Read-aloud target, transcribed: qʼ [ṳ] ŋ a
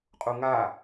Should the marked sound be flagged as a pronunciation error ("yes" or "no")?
yes